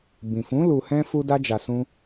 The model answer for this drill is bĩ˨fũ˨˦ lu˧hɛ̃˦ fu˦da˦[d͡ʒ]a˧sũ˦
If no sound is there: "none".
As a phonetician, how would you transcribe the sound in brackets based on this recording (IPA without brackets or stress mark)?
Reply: d͡ʒ